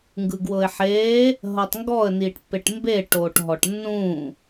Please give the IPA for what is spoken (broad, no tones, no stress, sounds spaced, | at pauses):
ŋ ɡ ɯ ɡ w ɤ ɪ̯ ħ eː | ɦ ɤ tˤ ŋ ɡ ɔ ə̯ n iː ʈ pː e ʈ m b e ʈ o ʈ ɦ ɔ ʈ nː ũ